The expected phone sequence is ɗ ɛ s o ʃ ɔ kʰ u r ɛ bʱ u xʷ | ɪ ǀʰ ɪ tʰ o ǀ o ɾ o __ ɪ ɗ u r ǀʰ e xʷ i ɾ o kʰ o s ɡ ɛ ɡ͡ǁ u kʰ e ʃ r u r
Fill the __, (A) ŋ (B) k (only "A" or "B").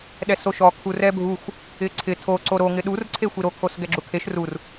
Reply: A